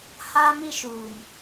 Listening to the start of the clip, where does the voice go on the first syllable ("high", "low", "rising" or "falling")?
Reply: high